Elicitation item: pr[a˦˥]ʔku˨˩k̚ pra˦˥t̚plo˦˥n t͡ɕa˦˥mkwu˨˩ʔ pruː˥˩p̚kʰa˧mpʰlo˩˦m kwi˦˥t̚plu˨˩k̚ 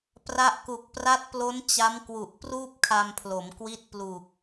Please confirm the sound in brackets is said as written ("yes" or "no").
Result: yes